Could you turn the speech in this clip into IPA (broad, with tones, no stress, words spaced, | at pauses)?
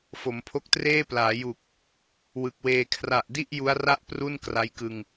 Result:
fo˩˦mpʰo˦˥k̚treː˥˩plaː˩˦ ju˨˩k̚ | wɯ˨˩k̚weː˧ kʰra˨˩ʔdi˥˩ʔ ju˦˥a̯ra˥˩ʔ pru˥˩n kra˦˥jkɯ˧ŋ